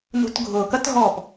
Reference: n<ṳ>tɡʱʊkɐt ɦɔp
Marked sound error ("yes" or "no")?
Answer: no